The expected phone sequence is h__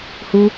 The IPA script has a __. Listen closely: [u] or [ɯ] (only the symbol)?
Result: u